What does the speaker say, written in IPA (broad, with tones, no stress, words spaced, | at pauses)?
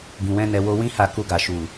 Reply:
ɡĩ˨wɛ̃˧nɛ˨ wo˧wĩ˦ha˧ ku˧ɡa˨ ʃu˨